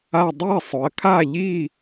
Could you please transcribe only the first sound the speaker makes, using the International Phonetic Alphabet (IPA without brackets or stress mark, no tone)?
a